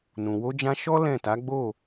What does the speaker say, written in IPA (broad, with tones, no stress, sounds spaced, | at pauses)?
n ũ˨ w o˧ d͡ʒ ã˧ ʃ ɔ˦ l ɛ̃˦˨ t a˨˦ ɡ͡b o˦˨